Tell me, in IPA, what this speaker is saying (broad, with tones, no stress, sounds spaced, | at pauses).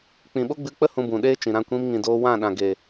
k͡p ĩ˨ ɓ o˦ ɡ͡b ɨ˧ k͡p ə˦ h ũ˧ b ũ˨ ɗ eː˦ t͡ʃ ĩ˨ ɾ ã˧ kʷ ĩ˧ m ŋ ĩ˨ d oː˧ w ã˦˨ ɗ ã˨ ɡ e˨